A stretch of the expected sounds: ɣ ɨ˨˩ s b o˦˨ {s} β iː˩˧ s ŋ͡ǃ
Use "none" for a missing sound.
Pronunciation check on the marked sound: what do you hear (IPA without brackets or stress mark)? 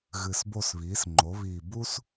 s